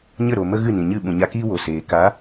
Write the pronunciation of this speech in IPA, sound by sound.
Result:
ɲə˦˨ɾo˨ mə˦ɣɨ˦˨nĩ˨ɲɨ˦˨ ɓũ˨ɲa˧kiː˦ wo˨seː˨ ka˨˦

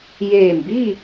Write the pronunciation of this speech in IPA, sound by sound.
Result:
jeː˧˩mbi˥˨

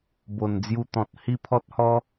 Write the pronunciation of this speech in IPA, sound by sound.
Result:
bo˨˩nd͡zju˧t̪ɔ̃˨t̚ hi˦pʰɔ˦t̚hɔ˦

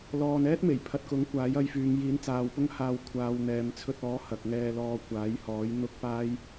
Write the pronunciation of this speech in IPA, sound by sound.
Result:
lɔː˨n ɛː˥t̚me˨˩jpʰɐ˨t̚kʊ˨˥ŋ kʷaː˨˥jɐ˧jfyː˨˧ŋ jiː˨˥nt͡saː˨˧wpʊ˥ŋhaː˧w kʷʰaː˨˧w n̪ɛː˨mt͡sʰɵ˧t̚ɔː˨˥ hɐ˨k̚ŋɛː˧lɔː˧ kʷaː˨˥jhɔː˨˥j n̪ʊ˥k̚paː˥j

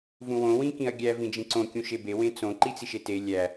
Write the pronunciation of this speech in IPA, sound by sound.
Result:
vũwõ wĩkĩɐ̯ɡʲæ vĩd͡ʒĩǀõ kʲũʃebe wẽt͡sõ ǃit͡siʃete lʲæ

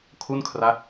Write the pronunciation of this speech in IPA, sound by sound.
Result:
kʰu˥˩nkʰra˦˥t̚

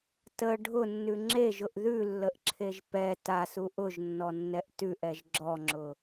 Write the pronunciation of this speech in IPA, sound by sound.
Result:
tə ɖʱʊnːʉ ŋ͡ǁeʒʊʔ ðʉlːəʔǁʰeʒ pɛ tasu ʔʊʒnːɔnːɛʔ tʉʔɛʒ ɡ͡ǁɔŋ͡ǁʊ

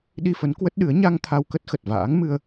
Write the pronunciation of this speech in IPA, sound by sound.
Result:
ɗi˧fə˨˦n kwə˦˥t̚ɗɨ˨˦ə̯ ɲa˧ŋ t̪ʰa˧wkə˦˥t̚ xə˨˩t̚va̰ː˧˥ŋ mɨ˧ə̯

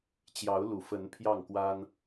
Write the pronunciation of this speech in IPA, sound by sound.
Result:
t͡ɕjɑ˨˦ʊ̯lu˨˩fə˨˦n pʰjɑ˥˨ŋkwa˦n

